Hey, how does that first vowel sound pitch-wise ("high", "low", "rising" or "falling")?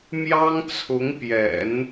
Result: high